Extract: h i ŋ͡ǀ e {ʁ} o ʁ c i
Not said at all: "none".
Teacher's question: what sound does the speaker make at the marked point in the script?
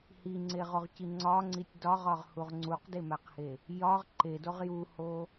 ʁ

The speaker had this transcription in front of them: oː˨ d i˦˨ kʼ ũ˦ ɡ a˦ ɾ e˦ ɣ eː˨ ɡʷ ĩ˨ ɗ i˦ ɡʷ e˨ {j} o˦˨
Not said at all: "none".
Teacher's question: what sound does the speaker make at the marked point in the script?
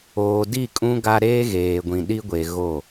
ɣ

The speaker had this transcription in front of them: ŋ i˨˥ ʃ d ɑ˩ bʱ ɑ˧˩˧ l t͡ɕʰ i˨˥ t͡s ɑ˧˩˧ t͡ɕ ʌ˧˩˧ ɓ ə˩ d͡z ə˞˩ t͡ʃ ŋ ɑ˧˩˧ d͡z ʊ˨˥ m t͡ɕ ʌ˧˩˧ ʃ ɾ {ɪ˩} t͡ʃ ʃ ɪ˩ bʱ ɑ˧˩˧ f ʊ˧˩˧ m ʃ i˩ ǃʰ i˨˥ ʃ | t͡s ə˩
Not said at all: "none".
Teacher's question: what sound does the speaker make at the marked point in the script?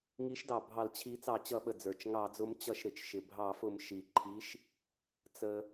ɪ˩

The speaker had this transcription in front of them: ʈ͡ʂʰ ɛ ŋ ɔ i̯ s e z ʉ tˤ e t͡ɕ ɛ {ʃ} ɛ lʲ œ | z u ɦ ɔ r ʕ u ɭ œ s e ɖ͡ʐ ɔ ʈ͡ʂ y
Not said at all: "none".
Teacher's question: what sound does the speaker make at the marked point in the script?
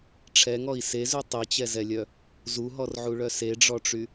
z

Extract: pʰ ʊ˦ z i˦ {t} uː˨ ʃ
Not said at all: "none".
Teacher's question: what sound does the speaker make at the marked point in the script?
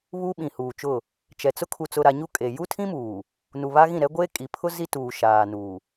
t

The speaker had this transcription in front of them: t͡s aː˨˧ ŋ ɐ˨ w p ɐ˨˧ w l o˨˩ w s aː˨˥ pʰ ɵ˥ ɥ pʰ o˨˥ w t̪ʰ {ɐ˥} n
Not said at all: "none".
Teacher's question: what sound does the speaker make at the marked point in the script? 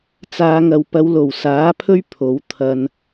ɐ˧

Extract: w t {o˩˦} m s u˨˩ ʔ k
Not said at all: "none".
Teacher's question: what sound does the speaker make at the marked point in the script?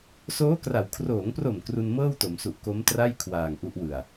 o˩˦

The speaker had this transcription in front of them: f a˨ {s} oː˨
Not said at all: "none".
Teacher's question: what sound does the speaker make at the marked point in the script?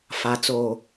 t͡s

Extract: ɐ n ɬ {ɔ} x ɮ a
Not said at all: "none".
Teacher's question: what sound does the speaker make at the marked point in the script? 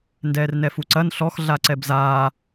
ɔ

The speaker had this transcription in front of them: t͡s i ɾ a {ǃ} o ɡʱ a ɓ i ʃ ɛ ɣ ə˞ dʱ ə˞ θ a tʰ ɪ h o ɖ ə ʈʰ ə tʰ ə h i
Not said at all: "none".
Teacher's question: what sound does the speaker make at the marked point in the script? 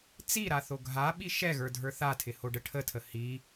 θ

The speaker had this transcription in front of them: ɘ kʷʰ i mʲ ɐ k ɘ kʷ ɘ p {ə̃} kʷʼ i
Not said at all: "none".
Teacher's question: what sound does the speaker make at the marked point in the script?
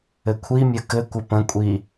ə̃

